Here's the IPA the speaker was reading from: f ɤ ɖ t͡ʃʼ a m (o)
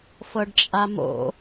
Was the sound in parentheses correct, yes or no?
no